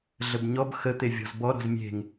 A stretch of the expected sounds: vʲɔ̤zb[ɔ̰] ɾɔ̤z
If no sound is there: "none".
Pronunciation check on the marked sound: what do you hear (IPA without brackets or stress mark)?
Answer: ɔ